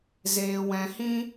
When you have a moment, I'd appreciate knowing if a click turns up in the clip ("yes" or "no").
no